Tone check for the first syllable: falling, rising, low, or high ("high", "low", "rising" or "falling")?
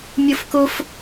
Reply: high